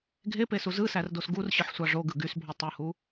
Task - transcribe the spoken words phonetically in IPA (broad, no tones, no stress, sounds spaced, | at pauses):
ɡʱ e p e s u z ɯ s æ r d o s ɡ u r ɕ ɯ ħ sʷ ɑ ʐ o ɡ ɯ ɡ y s bʱ o tˤ ɯ h u